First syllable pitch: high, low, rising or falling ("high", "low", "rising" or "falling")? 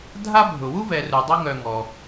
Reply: high